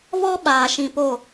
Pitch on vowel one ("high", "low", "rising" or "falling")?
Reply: high